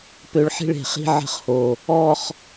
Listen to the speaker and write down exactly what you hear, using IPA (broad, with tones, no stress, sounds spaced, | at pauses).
p ø˧˩ ɭ ħ i̤˥˧ ɭ e̤˩˧ χ i̤˥ ʕ ə̤˥ χ h o˧˩ | ɔ˥˧ χ